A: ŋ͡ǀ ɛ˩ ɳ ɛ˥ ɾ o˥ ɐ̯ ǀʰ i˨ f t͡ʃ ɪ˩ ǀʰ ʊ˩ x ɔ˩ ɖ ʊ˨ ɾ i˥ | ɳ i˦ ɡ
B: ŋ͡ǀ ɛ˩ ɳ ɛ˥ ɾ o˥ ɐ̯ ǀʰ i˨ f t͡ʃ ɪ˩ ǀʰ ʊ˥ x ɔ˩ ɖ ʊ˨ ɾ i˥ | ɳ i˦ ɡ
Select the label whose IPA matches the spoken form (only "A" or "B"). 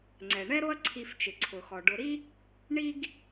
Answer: A